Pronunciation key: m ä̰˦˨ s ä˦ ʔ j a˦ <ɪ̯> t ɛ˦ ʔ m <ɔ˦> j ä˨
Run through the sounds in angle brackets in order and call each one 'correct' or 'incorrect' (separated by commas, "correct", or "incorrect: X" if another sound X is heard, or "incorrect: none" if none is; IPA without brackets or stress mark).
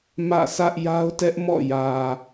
incorrect: ʊ̯, incorrect: ɔ̰˦˨